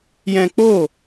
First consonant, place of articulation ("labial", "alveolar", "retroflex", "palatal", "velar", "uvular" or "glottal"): palatal